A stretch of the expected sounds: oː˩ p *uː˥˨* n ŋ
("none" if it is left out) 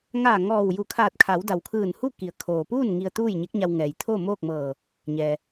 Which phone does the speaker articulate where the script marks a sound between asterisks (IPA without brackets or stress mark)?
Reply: uː˥˨